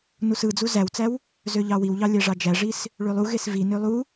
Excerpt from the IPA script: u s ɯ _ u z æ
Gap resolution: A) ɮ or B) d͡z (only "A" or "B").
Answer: B